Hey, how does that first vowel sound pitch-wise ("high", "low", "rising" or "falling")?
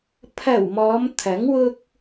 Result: low